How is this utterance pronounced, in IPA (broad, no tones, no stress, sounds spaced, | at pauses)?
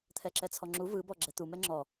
t̪ʰ ɛ ǁ ɛ t͡sʰ ɔ ŋ͡ǁ u v ɯ b ɔ ɡ͡ǁ ɛ t̪ u m ɛ ŋ͡ǁ ɔ